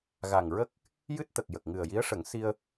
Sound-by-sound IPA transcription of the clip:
ɣa˨˩ŋɹə˦˥k̚ | jɨ˦˥t̚t̪ə˨˩k̚jə˨˩k̚ŋɨ˨˩ə̯ ji˧˥ə̯ʂə˨˩˦ŋ si˧ə̯

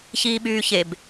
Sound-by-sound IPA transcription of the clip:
çiːɓyːçeb

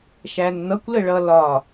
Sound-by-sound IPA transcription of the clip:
ʃænn̪ʌkʷ ləɭʌlɒ

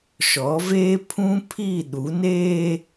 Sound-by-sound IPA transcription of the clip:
ʃɔ˨˦veː˦ pʰũ˦pʰi˦˨ ɗu˨˦neː˦

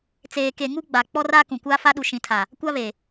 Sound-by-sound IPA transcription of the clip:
t͡seː˨ke˨ŋu˦ ɡ͡ba˨k͡pɔ˦ra˦ kũ˨kʷaː˦fa˦ ɗu˨ʃĩ˨tʰa˨ | kʷa˦βe˨

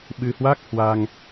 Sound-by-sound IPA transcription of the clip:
ɓɨ˧hwa˦˥k̚hwa˧ŋ

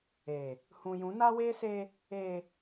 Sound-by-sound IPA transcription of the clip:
eː˨ | hũ˨jũ˨˦na˦weː˦ seː˦ | eː˨

